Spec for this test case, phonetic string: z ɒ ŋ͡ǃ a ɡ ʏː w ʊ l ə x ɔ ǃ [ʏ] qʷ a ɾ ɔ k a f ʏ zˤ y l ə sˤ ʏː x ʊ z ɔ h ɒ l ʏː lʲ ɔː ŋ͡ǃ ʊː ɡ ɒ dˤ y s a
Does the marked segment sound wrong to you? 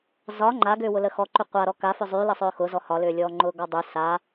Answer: no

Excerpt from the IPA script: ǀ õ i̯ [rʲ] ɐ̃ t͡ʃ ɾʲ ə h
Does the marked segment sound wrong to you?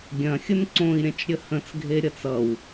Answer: yes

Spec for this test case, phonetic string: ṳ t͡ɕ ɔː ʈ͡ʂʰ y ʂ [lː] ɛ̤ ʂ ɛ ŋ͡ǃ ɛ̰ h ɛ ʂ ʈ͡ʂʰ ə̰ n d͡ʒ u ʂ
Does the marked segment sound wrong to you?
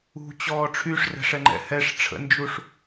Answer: yes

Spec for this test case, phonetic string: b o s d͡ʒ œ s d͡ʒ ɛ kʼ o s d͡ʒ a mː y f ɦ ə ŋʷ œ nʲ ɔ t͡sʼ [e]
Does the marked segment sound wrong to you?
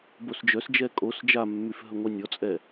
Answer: yes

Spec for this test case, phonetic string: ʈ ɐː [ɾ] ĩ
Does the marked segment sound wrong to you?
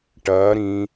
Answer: no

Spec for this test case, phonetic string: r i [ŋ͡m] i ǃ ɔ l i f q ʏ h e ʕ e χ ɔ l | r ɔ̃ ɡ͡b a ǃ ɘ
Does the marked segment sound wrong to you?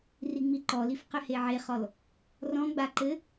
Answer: no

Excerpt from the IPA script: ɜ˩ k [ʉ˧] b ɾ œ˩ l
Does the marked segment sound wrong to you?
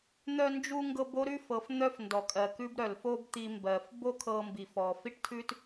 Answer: yes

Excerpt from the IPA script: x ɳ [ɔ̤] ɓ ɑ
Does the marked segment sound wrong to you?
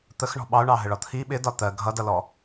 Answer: no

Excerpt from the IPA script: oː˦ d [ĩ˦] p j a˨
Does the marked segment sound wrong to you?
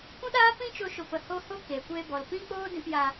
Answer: yes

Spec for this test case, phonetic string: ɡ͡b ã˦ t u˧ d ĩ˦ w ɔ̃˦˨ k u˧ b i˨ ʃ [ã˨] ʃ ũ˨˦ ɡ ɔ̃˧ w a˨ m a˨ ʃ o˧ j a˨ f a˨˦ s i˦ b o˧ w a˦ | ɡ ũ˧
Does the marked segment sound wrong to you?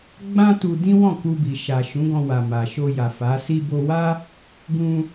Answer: yes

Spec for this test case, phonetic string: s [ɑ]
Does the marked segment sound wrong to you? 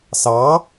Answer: no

